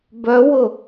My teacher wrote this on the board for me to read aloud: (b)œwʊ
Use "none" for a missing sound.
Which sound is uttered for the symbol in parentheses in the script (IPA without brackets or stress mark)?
b